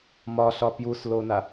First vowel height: low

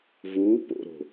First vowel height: high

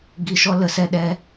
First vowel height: high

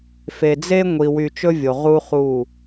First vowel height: mid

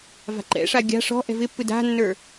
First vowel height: low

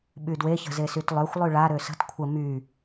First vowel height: high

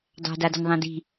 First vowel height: low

